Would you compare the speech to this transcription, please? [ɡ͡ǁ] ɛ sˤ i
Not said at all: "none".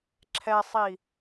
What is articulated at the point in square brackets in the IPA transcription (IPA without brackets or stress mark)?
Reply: ǁʰ